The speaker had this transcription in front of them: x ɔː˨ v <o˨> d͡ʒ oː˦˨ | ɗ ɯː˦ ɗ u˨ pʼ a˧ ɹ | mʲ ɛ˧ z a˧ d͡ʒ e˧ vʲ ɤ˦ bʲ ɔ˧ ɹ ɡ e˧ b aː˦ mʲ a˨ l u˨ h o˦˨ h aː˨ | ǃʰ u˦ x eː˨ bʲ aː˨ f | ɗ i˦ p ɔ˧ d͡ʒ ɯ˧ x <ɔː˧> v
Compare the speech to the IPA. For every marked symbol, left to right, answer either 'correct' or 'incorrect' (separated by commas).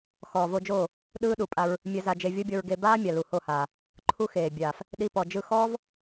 incorrect, incorrect